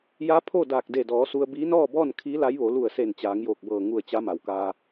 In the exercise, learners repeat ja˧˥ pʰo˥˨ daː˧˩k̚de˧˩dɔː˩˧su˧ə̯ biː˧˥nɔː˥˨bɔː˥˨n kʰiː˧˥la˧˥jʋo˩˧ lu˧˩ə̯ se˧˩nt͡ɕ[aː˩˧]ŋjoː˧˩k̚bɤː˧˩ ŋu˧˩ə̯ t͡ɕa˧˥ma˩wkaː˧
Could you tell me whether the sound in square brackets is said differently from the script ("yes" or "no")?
no